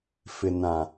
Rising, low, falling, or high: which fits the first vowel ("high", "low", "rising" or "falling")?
low